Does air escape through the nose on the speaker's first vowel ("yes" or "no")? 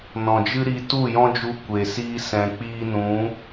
yes